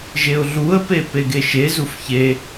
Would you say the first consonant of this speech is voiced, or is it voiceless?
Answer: voiced